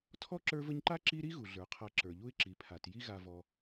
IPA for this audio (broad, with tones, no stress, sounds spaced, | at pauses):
tʰ ɔ˥ ǁ ə˞˦ v ə˦ ɲ ǃ a˥ ǁ i˦ ɾ i˥ ɣ u˩ ɮ ə˞˩ qʰ a˨ ǁ ə˞˩ ʎ u˦ ɪ̯ ǁ i˩ pʰ a˩ t j i˦ ɣ a˨ v ɔ˨